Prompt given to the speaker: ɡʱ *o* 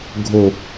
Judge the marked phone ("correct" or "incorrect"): correct